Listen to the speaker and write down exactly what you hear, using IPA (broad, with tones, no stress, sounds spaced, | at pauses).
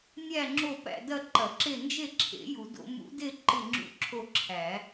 nʲ æ˦˨ ŋ͡ǁ o˦˨ p æ̰˦˨ d ɐ˦˨ ǃ ɐ˨˩˦ ǁ e˦˨ n d͡ʒ e˦˨ ǁʰ ḛ˨˩˦ j u˨˩˦ d o̰˨˩˦ m ṵ˨˩˦ d e˦˨ ǃ ɪ˦˨ ŋ͡ǁ ṵ˦˨ ǁʰ o˦˨ ǁʰ æ˨˩˦